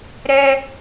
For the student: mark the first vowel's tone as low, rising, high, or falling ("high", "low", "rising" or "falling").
high